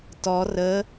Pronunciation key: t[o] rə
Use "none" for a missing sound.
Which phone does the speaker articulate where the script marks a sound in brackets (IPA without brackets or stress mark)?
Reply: ɔ